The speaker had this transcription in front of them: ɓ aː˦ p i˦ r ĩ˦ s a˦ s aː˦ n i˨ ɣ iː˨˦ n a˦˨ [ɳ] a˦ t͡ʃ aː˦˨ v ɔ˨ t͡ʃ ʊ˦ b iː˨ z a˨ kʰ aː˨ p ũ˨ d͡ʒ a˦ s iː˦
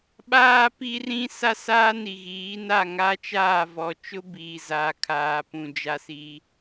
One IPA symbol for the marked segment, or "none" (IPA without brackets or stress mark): ŋ